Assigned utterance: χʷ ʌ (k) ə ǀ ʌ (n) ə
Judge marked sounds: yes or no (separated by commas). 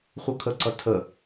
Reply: no, no